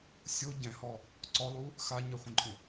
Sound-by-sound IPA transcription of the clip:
sʲ o ɟ ɛ̃ h ɔ | ǀ ɔ lˠ u | x a ɲ ɛ χʷ ẽ ǃʼ ũ

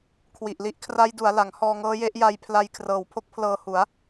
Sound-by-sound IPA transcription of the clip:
kʰ w i˨˩ ʔ l i˦˥ ʔ kʰ r a˦˥ j d u˩˦ a̯ l a˩˦ ŋ h ɔː˧ ŋ ɤː˦˥ j e˦˥ ʔ j a˧ j pʰ l a˧ j kʰ r ɤː˨˩ w pʰ o˥˩ k̚ pʰ l ɤː˧ h u˩˦ a̯

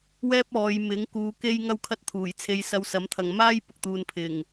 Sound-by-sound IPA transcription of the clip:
w ɛː˥ p̚ ɔː˨˧ j m ɪ˨˥ ŋ k uː˨˧ k e˥ j ŋ ɐ˥ w kʰ ɐ˥ t̚ t̪ʰ uː˨˩ j t͡sʰ e˧ j s ɐ˧ w s ɐ˨˥ m t̪ʰ ɐ˨ ŋ m aː˥ j p ʊ˨ k̚ t̪ uː˧ n pʰ ɪ˨˩ ŋ

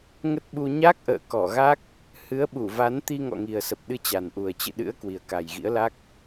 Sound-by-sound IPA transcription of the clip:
ŋ ə˦˥ t̚ ɓ u˧ ɲ a˦˥ k̚ ʔ ə̰ː˧˨ k ɔ˧˩ ɣ a˦˥ k̚ | h ɨ˨˦ ə̯ ɓ u˧˩ v a˨˦ n t̪ i˧ ŋ ɔ̰˧˨ ŋ i˨˩ ə̯ s ə˨˩ p̚ ɗ ɨ˧ t͡ɕ a˨˩ n ʔ u˨˩ ə̯ t͡ɕ ɨ̰˧˨ ɗ ɨ̰˧˥ ə̯ k w i˨˩ ə̯ k a˨˩ j ɣ ḭ˧˥ ə̯ l a˦˥ k̚

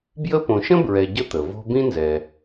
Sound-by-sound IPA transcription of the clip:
b j ə˦ p õ˨ ʃ ə̃˥ b ɹ ɛ˨ ɟ ə˥ t̪ ə˩ v o̤˦ b ĩ˥ n z ɛ˩

